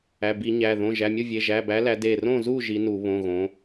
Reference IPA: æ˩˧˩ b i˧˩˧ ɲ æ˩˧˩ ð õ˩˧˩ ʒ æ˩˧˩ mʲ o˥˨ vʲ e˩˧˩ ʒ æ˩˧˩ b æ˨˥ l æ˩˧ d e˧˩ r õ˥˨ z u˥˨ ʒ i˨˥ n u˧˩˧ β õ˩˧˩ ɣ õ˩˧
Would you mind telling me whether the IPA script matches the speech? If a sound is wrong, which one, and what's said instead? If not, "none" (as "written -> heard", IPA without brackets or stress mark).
none